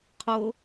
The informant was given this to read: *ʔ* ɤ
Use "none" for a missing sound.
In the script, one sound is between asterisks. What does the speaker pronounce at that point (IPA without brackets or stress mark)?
qʰ